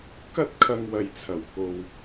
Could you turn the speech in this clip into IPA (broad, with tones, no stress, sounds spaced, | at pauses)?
k ɐ˥ t̚ kʰ ɐ˧ ŋ w ɐ˨ j t͡sʰ ɐ˨˩ w k o˨ w